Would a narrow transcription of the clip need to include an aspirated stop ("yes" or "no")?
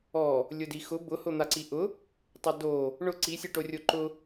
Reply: no